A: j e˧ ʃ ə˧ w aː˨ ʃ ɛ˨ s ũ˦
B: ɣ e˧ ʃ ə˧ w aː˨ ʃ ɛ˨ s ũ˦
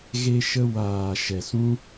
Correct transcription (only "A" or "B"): B